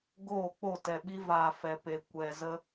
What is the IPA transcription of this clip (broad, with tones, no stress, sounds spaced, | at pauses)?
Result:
ɡ oː˦˨ k͡p o˦˨ t ɛ˨ ɓ i˧ v aː˨ f ɛ˨ p e˨ kʷ ɛ˨ z ə˧